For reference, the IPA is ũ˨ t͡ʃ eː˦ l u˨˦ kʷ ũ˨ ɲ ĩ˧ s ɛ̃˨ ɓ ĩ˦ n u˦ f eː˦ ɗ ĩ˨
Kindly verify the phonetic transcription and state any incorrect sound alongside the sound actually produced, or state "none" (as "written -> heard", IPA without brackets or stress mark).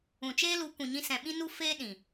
none